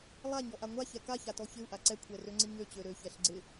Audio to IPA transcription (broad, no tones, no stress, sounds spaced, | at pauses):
lˠ a ɲ ɔ ʔ a ŋʷ a ç ɛ k a ç a t ɔ ç ɪ u̯ ʔ a ǀ ɛ kʷʰ ɛ r ø ŋ͡ǀ ɪ ɲ ø t͡ɕ ø ɾ ø ç ɛ ɬ ɡ͡ǀ ɪ